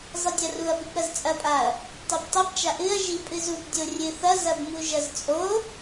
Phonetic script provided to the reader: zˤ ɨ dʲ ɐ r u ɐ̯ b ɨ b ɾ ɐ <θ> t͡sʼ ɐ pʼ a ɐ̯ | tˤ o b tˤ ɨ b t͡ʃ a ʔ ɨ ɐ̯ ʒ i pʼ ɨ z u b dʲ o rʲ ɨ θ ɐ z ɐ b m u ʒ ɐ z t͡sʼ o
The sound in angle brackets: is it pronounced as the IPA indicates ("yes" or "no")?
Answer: no